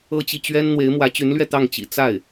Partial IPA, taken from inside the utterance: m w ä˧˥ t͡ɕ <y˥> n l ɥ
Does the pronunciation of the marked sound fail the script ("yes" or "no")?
yes